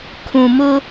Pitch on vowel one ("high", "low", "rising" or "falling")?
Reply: low